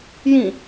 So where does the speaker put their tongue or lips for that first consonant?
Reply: palate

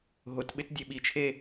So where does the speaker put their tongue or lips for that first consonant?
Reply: throat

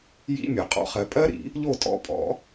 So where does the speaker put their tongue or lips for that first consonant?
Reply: palate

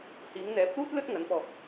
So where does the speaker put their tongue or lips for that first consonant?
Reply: throat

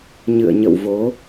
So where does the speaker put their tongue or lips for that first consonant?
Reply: palate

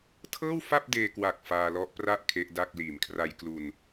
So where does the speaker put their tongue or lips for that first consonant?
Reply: tongue tip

